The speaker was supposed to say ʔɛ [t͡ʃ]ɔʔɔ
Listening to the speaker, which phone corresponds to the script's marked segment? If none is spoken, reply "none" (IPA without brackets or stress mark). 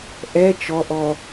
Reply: t͡ʃ